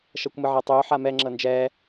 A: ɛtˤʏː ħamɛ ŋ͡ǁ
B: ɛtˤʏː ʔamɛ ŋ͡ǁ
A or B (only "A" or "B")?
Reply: A